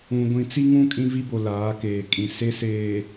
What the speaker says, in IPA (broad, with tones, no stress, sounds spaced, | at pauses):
ũ˨ ɡʷ ĩ˨ t͡s i˦ ŋ ũ˦ kʼ ĩ˦ v i˦ b o˨ l aː˨˦ k eː˨ kʼ ĩ˨ s e˦ s eː˨